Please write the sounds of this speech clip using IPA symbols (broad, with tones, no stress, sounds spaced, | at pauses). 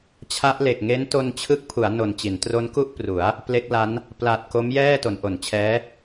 t͡ɕʰ a˦˥ ʔ l e˨˩ k̚ ŋ e˦˥ n t o˧ n t͡ɕʰ ɯ˦˥ k̚ pʰ u˩˦ a̯ n o˨˩ n t͡ɕ i˩˦ n t r o˦˥ n k u˥˩ ʔ p r u˩˦ a̯ | p l e˦˥ k̚ l a˦˥ n | p l a˨˩ t̚ k o˦˥ m j ɛː˥˩ t o˩˦ n ʔ o˩˦ n t͡ɕʰ ɛː˦˥